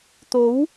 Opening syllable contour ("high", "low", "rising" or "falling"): rising